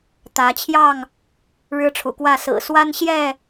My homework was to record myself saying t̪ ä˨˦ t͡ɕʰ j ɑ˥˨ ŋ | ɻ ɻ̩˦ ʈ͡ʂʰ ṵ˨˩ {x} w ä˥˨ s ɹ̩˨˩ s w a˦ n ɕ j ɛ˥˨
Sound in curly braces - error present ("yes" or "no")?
yes